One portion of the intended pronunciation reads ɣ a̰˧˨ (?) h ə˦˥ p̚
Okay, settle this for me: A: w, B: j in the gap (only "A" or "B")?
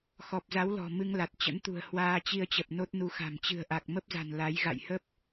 B